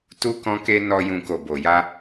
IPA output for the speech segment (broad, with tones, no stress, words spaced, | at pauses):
tu˦kɔ̃˦ke˦ nɔ˧ jũ˧ ko˨bo˨ja˧